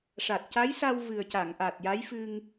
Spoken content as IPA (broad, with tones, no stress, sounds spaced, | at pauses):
ʂ a˨˩ t̚ c a˧˥ j s a˧ w v ɨ˨˩ ə̯ c a˨˩˨ ŋ ʔ a˨˩ t̚ j a˧˥ j f ɨ˧ ŋ